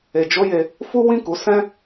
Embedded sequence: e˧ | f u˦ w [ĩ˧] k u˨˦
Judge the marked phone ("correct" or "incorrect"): incorrect